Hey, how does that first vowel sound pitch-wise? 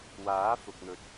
rising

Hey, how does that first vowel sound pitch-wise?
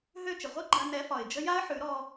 falling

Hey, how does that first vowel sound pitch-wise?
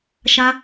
high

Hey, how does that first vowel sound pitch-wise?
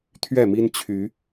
falling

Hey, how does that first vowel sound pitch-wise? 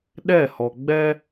falling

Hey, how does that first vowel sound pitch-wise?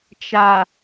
low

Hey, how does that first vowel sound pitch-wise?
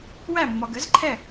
falling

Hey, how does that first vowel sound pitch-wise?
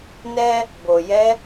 high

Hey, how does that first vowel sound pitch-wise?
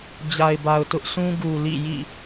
low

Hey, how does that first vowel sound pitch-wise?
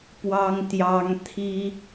high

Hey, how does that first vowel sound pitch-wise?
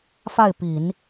falling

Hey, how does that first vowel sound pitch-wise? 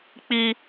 high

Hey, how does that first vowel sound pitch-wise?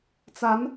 rising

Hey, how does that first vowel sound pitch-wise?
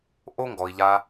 high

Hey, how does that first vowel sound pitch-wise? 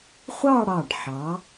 falling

